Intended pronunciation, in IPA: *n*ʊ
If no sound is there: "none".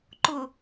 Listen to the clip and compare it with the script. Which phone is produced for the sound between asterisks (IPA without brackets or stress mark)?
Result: ǃ